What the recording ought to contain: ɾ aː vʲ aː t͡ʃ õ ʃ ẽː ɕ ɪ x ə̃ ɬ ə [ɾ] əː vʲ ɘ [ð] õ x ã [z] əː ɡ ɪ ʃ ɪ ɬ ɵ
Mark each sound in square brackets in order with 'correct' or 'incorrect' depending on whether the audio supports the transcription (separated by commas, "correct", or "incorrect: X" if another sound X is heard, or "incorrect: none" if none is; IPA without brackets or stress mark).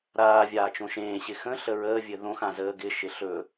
incorrect: ɹ, correct, correct